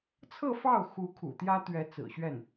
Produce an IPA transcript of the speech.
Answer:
t͡sʰɤ˥˧fɑ˥˩ʊ̯xu˧˥kʰṵ˨˩ t̪jä˥ t̪ɥɛ˧˥ t͡sɹ̩˨˩ɕɥɛ˥˩n

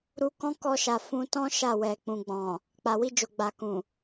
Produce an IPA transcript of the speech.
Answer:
ɾu˧kɔ̃˦kɔ˧ʃa˨ fũ˧tɔ̃˦ ʃa˦˨wɛ˨ k͡pũ˨ɡ͡bɔ̃˨ | k͡pa˨wi˧d͡ʒo˨ ɡ͡ba˨kũ˨

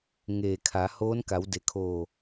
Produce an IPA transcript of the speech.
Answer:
ŋeː˧˩kʰa˩˧ hoː˧˥nka˩˧wde˩˧kʰoː˧˩

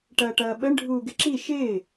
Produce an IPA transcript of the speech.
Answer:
ʈɐːʈɐːɓəɳ ɖʱuːɡɪǁi ʃɪː

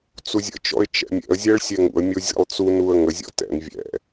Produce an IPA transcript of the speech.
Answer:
t͡suzʲə̰t͡ʃɔ̰ɪ̯ t͡ʃɛ̰mʲɛ̰ə̯zʲɛɭ sʲɛŋṵə̯mʲo zʲɛ̰lˠt͡sunuə̯ ŋəzʲɔ̰ tɛ̰n vʲɛ̰

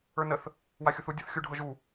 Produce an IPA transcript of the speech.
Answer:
ə˞nəθ | waxʲuθu dʲɤθxʲu ɖʱɤʒu

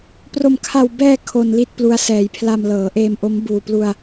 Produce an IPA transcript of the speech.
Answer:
pro˨˩mkʰa˨˩w bɛː˧ kʰo˧nli˥˩t̚plu˧a̯ sɛː˩˦jpʰla˧m lɤː˩˦ʔeː˧mʔo˦˥m buː˨˩plu˧a̯

